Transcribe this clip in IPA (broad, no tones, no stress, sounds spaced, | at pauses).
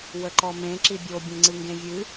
w ə ǃ ɔ m ẽ ǁ i bʲ o bʲ ẽ ŋ͡ǀ ɨ ŋ ɡ ẽ vʲ ɨ